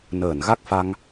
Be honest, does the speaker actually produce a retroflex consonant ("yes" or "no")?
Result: no